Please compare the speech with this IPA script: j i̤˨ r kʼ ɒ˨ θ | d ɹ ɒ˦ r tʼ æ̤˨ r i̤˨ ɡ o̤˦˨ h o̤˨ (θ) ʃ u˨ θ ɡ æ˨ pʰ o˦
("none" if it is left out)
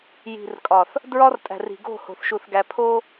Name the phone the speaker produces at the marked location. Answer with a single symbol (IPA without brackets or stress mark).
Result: θ